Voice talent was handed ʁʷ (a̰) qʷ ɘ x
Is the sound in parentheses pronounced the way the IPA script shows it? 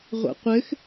yes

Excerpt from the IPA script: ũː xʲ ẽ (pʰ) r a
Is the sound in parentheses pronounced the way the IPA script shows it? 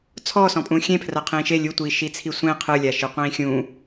yes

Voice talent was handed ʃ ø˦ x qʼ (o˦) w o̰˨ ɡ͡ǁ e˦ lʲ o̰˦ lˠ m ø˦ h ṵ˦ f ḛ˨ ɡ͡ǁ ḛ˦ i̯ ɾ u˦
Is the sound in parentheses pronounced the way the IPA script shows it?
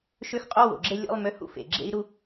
yes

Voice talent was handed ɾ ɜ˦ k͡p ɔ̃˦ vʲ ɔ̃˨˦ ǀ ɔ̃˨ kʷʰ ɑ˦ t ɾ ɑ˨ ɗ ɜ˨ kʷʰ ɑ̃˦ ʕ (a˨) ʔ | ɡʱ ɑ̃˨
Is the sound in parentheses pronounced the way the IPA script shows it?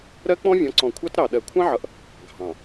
no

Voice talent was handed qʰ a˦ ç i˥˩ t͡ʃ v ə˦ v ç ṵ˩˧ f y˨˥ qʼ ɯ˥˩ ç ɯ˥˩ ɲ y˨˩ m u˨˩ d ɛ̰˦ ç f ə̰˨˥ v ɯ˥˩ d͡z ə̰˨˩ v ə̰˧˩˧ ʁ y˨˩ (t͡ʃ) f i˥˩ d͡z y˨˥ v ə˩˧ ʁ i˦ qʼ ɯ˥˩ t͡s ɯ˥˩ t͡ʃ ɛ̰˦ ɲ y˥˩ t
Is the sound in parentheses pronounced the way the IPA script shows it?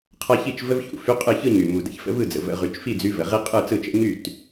yes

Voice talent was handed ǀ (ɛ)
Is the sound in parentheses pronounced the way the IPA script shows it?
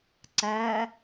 no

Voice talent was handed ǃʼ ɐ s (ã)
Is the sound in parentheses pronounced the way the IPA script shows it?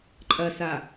no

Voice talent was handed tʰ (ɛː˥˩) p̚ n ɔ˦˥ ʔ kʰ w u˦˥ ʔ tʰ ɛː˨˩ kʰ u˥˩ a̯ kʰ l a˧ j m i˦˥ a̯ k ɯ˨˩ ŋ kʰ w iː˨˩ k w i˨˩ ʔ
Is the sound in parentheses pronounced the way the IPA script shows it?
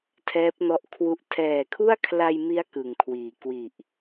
no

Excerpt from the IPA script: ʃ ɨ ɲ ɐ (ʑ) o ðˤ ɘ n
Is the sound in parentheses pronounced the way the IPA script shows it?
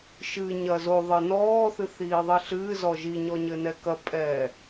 no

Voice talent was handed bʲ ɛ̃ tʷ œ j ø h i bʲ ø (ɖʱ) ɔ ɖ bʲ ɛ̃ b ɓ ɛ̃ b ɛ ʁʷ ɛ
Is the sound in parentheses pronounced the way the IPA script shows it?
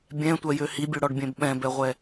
no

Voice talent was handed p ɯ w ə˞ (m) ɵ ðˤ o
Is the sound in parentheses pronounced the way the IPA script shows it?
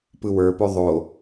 no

